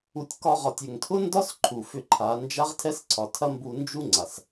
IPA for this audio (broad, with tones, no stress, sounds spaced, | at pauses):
u˧ tʲ k ɒ˧ ʁ ɒ˨ tʲ ʏ˨ ŋ tʰ ʊ˦ n d ɒ˦ s ǃʰ u˨ f ʏ˧ ǃʰ a˨˦ n d͡ʒ a˦ ʁ tʰ ɛ˦ s ǀʰ ɒ˨ tʰ ɐ˦ m b u˧ n d͡ʒ u˦ ŋ͡ǀ a˨ s